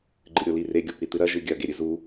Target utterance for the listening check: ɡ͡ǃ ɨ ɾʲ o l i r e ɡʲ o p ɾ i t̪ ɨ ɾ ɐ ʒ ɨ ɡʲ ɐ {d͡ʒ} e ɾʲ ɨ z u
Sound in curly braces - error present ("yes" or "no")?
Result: yes